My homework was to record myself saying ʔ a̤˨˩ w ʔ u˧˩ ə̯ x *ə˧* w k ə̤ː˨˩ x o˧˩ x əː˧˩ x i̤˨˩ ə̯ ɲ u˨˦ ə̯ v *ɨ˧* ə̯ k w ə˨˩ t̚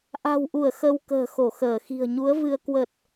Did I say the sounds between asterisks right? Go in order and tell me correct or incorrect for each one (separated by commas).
correct, correct